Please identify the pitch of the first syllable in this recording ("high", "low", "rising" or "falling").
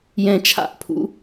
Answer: low